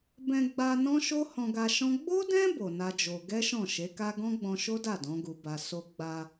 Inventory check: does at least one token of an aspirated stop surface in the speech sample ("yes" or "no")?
no